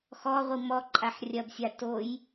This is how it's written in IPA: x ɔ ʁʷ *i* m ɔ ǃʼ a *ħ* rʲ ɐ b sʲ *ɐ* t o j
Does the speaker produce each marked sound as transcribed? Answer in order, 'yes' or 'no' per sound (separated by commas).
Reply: yes, yes, no